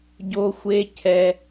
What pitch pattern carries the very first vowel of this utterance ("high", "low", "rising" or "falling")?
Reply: high